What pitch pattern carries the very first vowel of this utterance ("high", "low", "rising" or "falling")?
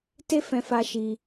high